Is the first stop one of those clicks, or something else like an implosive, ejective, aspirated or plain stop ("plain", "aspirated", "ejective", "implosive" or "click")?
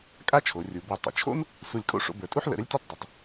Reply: ejective